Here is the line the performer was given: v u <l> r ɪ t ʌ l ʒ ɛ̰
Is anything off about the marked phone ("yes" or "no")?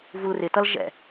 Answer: no